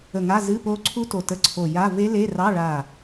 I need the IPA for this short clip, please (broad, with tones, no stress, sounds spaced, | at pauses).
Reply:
ə˧˩ ŋ a˧˥˧ z ɨ˧˥˧ p o˦˥ ǀʰ u˦˥ t o˧˩ t ə˧˥˧ ǀʰ o˧˩ j a˧˥˧ v e˦˥ l e˧˥˧ r ɑ˧˥˧ ɭ a˧˩